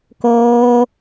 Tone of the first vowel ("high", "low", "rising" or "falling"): high